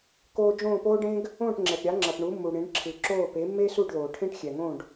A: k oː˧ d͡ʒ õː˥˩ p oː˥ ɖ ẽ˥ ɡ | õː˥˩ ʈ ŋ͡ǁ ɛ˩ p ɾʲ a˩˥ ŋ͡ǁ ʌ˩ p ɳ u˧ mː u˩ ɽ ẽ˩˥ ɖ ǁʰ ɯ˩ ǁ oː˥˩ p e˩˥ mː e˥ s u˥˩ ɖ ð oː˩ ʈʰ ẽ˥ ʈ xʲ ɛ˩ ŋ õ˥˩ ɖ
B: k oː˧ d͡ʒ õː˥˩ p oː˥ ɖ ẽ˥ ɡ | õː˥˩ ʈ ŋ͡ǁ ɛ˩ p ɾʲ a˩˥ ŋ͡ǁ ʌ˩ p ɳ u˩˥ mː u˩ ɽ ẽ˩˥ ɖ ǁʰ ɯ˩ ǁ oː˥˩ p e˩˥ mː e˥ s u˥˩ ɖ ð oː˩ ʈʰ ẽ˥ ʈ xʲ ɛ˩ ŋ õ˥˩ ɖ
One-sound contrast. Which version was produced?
B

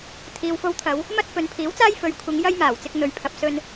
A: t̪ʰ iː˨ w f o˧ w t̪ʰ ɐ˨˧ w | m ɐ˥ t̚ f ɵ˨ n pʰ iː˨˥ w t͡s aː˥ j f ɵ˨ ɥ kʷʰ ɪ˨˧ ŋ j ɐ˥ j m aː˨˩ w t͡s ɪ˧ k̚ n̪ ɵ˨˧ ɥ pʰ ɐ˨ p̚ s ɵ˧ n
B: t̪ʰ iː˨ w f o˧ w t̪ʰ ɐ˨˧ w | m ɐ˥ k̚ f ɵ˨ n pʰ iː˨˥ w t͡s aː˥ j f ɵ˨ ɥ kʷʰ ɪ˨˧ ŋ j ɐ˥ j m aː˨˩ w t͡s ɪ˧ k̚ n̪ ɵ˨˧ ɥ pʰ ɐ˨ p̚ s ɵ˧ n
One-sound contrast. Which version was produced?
A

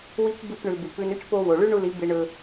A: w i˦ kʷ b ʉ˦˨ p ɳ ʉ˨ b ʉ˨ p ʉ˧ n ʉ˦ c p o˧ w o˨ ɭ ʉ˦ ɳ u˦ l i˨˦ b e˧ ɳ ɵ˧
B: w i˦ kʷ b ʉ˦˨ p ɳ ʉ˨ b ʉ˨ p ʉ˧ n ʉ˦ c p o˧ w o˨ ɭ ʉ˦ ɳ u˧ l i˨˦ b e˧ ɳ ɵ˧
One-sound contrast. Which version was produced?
B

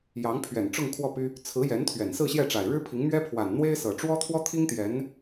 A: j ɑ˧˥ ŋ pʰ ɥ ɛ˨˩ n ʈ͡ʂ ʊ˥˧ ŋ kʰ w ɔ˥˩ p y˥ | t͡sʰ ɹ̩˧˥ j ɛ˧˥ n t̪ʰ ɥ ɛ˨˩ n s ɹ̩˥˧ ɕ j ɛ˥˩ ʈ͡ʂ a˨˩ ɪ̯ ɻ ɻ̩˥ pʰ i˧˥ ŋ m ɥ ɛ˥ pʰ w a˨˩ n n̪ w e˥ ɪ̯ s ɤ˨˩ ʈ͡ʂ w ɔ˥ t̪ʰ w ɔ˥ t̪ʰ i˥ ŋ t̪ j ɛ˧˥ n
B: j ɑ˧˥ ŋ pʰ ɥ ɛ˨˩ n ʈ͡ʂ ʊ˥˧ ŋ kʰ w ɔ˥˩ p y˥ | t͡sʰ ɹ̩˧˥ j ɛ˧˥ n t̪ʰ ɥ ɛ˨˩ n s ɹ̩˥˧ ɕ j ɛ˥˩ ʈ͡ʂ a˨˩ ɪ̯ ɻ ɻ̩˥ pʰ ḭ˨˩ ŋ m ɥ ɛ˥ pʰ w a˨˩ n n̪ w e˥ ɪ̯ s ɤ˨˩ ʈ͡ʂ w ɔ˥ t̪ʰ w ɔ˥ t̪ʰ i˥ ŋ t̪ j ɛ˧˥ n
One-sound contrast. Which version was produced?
A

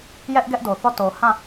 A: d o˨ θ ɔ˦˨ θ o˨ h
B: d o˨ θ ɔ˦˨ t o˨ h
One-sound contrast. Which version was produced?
B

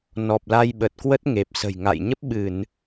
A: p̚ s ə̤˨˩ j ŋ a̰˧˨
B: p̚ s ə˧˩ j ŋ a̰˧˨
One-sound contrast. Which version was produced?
A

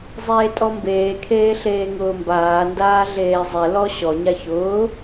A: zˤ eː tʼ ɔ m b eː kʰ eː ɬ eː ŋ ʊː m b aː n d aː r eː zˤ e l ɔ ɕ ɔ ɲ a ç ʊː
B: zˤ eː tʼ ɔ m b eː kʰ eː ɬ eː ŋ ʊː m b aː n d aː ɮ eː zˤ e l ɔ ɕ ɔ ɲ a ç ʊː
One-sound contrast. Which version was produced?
B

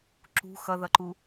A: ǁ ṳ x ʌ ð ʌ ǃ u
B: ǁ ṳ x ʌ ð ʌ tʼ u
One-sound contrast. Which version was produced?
A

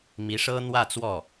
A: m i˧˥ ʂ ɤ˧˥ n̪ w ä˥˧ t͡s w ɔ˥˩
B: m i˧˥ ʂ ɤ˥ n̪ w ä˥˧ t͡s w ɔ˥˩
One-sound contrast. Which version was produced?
B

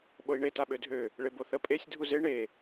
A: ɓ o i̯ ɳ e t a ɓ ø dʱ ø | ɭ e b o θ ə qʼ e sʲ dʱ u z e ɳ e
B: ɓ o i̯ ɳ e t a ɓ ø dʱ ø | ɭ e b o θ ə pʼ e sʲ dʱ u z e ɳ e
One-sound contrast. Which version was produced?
B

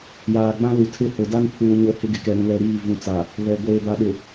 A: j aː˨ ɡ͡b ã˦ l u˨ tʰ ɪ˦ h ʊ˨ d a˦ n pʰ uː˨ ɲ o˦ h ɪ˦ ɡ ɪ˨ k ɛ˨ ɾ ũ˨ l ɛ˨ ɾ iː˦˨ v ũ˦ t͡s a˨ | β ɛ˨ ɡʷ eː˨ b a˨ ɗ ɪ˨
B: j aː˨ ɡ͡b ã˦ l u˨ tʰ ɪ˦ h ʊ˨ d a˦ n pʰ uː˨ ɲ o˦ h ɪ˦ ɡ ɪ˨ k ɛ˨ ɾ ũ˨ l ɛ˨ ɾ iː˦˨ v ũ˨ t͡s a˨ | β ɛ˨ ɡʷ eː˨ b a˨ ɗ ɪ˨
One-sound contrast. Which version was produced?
B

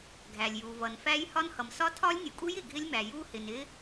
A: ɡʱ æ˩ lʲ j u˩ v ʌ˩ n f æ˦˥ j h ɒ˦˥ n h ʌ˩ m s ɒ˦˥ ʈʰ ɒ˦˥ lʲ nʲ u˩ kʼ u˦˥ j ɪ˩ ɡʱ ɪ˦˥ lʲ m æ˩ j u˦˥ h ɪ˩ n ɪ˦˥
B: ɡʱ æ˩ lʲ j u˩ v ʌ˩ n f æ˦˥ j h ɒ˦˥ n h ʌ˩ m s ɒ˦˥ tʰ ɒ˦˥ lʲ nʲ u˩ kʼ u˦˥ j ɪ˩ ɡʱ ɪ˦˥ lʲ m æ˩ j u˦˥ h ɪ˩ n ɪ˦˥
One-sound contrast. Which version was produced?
B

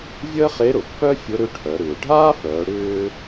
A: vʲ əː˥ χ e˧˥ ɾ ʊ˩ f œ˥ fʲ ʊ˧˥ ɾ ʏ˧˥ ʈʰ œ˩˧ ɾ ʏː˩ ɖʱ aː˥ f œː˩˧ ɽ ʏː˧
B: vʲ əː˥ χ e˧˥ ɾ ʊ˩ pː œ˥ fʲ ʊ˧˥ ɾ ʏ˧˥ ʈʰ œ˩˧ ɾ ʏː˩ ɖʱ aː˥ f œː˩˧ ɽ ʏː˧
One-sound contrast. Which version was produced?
B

